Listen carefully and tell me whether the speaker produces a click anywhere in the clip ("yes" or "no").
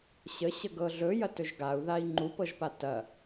yes